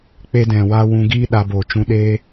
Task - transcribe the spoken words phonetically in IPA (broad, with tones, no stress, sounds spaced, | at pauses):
k͡p e˧ d ɛ̃˨ w a˧ w ũ˧ ɡ iː˦ ɗ a˧ b oː˨ t͡ʃ ũ˧ ɗ eː˦